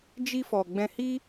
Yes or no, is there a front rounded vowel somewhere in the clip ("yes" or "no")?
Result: no